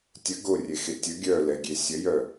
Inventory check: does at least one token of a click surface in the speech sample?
no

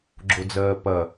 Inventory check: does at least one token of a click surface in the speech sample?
yes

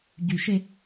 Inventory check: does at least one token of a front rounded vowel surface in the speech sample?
yes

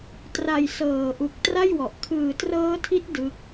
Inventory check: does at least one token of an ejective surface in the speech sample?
no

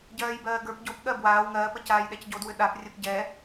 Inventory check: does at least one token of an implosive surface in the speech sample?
yes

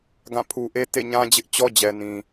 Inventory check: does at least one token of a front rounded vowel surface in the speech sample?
no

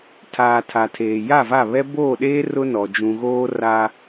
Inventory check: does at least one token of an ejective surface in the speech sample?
no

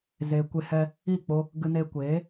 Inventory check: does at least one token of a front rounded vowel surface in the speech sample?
no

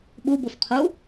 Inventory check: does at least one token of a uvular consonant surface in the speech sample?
yes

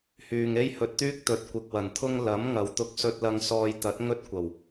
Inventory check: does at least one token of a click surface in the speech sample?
no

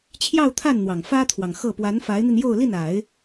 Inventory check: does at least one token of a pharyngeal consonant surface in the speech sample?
no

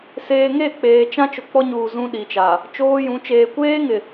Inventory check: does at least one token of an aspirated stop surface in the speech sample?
no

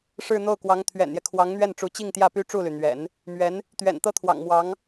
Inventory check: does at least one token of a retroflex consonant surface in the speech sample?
yes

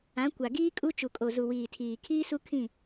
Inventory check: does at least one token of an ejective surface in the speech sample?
yes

